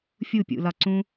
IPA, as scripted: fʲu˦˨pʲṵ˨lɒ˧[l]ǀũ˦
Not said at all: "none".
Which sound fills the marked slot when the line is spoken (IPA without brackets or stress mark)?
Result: none